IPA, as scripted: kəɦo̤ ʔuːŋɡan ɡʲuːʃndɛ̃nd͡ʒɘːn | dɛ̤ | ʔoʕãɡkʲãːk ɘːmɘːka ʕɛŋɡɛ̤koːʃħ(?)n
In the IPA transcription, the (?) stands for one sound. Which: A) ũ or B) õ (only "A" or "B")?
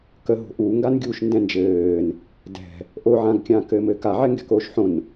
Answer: B